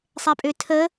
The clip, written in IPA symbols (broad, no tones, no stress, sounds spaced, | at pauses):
sˤ ɛ pʼ ø tʰ ə